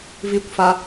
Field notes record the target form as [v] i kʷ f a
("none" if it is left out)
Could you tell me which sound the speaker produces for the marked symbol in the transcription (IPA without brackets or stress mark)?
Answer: v